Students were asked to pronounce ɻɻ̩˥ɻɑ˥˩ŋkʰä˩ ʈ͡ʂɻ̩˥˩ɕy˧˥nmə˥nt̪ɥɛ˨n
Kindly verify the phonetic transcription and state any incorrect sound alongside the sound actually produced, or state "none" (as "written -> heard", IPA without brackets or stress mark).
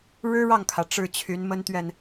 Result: ɕ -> t͡ɕʰ